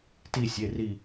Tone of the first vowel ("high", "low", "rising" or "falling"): falling